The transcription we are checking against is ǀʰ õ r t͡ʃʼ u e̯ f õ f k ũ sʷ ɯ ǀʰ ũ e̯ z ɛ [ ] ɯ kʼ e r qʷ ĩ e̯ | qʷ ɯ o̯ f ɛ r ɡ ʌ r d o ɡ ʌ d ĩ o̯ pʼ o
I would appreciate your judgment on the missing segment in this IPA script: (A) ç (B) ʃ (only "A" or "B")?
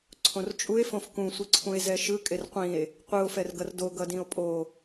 B